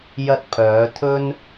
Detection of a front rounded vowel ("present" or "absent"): present